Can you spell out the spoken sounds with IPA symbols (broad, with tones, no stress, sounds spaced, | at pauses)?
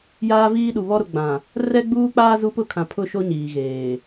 j aː˦ v iː˦ ɗ u˨ β ɔ˦ ɾ ʊ˨ ɡ͡b ã˨ | r ɛ˦ ɡ͡b uː˦ k͡p aː˦ z u˦ p ʊ˦ kʰ ã˨ pʰ ʊ˦˨ ʃ o˦ ɲ iː˨ ɣ eː˨